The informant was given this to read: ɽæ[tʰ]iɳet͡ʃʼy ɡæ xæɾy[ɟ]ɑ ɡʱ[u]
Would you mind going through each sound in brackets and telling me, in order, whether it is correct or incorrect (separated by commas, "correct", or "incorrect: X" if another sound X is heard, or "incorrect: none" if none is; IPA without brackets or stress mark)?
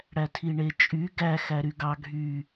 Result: correct, incorrect: ɡ, incorrect: y